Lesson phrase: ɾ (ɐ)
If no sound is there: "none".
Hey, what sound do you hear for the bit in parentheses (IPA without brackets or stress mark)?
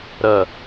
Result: ɐ